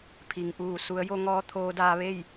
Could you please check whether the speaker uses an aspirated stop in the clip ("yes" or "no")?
yes